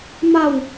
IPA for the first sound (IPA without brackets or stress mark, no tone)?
m